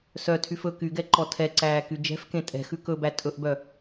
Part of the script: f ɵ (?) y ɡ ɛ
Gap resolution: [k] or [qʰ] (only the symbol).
k